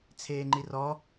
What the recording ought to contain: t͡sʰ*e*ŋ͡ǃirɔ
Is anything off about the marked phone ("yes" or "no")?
yes